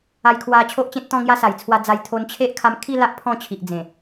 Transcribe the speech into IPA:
a˧ j kʰ w a˧ t͡ɕʰ o˦ ʔ t͡ɕ ẽ˦ t̚ t̪ ɔ̃˥˧ ŋ j a˦ s a˨˩ j t͡sʰ w a˧ d͡z a˧ j t̪ʰ o˧ n t͡ɕʰ e˦ ʔ kʰ a˧ m kʰ i˥˧ l a˦ ʔ pʰ ɔ̃˥˧ t͡ɕʰ i˨ ʔ d͡z ẽ˨˩

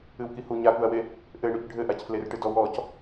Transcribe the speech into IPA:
ɨ w k i h u ɲ a k u ɐ̯ w e | ʔ ɘ ɳ u c ɖʱ ɘ ʔ a c f l e r ʈ ɨ d ɔ w ɔ c

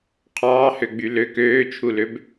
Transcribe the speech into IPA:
qʰ ɑː h ø ɡ͡b y l ø k øː t͡ʃʰ u l ø b

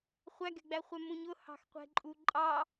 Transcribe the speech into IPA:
χʷ æ ɡ ɛ̤ ɡ͡b æ χʷ ɛ m ũ ɲ ʊ h ɑ̤ x qʷ ɛ̤ ǃʼ u ǃʼ ɑ

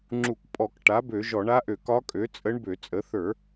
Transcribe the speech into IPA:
ŋ͡ǁ u˧˩˧ k pʼ ɔ˧˩˧ k ʈ a˩˥ b ø˧˩˧ ʒ ɔ˧˩˧ ɳ a˧˥ ʔ ø˧˩˧ k ɒ˧˥ kʼ ø˩˥ t͡sʼ ə˧˥ ɳ b ø˧˩˧ t͡sʼ ə˩˥ θ ə˞˧˩˧

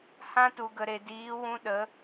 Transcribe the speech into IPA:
h ã˦ t u˨ ɡ ə˨ ɾ e˨ d iː˨˦ w ũ˧ ɗ ə˨˦

